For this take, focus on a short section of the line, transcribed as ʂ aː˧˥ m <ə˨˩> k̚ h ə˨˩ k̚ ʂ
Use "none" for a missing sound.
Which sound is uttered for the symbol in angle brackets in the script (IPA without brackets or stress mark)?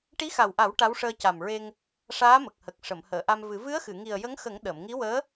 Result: ə˨˩